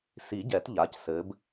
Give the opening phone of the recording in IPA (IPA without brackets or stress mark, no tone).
s